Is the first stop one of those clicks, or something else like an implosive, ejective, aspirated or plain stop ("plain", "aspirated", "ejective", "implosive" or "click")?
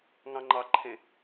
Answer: click